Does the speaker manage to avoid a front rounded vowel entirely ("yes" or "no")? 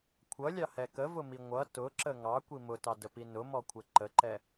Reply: yes